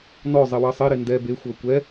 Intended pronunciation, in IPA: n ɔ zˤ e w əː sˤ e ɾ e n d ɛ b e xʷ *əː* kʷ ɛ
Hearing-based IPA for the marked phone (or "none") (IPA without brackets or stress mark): əː